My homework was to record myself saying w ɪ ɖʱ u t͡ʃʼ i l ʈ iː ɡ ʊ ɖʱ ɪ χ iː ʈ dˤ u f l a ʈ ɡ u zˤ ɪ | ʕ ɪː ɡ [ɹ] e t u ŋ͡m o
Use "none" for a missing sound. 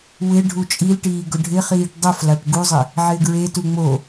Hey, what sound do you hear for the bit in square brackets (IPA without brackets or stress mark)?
ɹ